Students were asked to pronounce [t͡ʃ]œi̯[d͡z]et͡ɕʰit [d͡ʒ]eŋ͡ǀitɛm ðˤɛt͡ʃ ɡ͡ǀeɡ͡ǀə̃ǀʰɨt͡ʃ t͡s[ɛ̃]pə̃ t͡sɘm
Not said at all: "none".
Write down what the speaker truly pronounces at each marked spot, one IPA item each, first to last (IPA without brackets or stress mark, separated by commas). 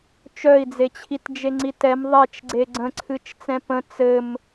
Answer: t͡ʃ, d͡z, d͡ʒ, ɛ̃